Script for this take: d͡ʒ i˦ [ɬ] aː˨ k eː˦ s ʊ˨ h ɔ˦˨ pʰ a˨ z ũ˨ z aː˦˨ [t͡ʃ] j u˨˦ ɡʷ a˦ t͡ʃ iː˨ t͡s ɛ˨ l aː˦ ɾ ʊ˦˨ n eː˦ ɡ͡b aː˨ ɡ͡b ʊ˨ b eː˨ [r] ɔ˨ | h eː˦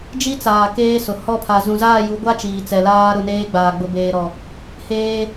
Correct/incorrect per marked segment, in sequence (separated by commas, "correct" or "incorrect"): incorrect, incorrect, incorrect